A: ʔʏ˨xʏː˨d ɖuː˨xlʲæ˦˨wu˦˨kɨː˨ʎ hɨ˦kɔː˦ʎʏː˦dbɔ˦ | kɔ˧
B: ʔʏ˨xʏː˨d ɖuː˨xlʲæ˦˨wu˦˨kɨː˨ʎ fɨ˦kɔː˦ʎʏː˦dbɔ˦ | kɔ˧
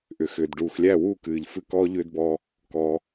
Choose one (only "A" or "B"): B